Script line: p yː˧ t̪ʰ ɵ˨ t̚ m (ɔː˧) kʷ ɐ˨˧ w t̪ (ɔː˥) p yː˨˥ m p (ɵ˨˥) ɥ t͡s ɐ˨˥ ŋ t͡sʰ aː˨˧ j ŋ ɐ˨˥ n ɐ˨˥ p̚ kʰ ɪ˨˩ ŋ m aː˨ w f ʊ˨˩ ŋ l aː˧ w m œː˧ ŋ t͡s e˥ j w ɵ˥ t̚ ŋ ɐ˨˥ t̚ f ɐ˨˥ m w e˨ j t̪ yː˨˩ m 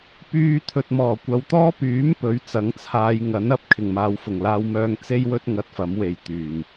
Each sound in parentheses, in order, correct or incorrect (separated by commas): incorrect, correct, correct